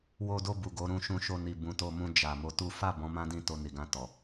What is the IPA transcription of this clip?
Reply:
wo˧do˧ bu˨ɡo˨˦ɾũ˧ ʃũ˧ʃo˧ni˨ bũ˨˦to˧mũ˧ d͡ʒa˨ mo˧tu˦ fa˦˨bɔ̃˨˦ mã˦dĩ˦˨ to˧ni˨ɡã˧ tɔ˨

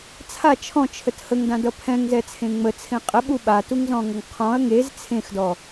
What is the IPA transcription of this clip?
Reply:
t͡sʰa t͡ʃʰɔ̃t͡ʃʰət həŋdãdʌ pʰɛ̃ŋzɛt͡sʰẽ ŋ͡mət͡sʰẽ qʼəɓu ɓatuŋzɔ̃ŋʌŋ qʰɔ̃ɐ̯ ŋez t͡sʰẽxdɔ

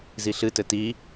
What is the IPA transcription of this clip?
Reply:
ziɬɨtɘ ti

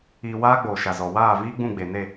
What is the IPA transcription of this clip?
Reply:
iː˧ waː˦ɡ͡boː˨ ʃa˨zɔ˨ waː˦˨viː˦ɡ͡bũ˦˨ ɡ͡be˨ne˦˨

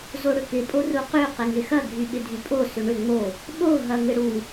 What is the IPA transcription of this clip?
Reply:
zoɽʏkɪ pʼoruqy qɪŋɪxɐ ɡʱyɓɪdʱypʼo sʏɳʏ ŋ͡mo | ɓo ɦɐŋɪɽu

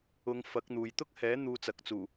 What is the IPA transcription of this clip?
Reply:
ʊ˨˧ŋ fɐ˨˥k̚n̪uː˨j t̪ʊ˥k̚hɛː˨˥ n̪uː˧t͡sɐ˨k̚t͡suː˨˩

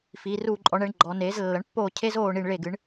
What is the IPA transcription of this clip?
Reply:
fi˩˧ruː˦˨ǃʼɔ˩˥ɳɛ˩˥ɳ ɡ͡ǃɔ˩˧neː˩˥z lːɐ˩˥ɳpːoː˦˨cʰe˦˥zoː˦˨ ɳi˦˨ɳ ɭe˦˨ɡɨ˩˥ɳ

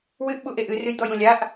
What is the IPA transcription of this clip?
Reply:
wɨʔɓu ʔeʔɨ rɨjd̪ɔjũlʲaʔ

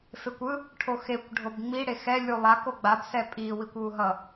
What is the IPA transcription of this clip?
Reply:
fekʷɯ | ʈʰoxekʷ ɖʱobŋ͡mi ɽexɛ lʲulˠa koɡ͡bab sɛpʼi wikʷwuɦʌ

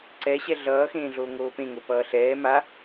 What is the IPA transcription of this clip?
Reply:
ǀɛɕɛ ɮʌːxẽːɮo ŋoːpẽŋopʌː ɬɛː ma

